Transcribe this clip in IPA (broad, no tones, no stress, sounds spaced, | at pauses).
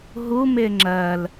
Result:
ɦ u m ɪ ŋ͡ǁ ɜ l